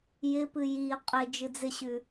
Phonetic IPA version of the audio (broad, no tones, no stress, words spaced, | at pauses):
jɪpɨ ji qʼɪ d͡ʒɨd͡zɪɕʉ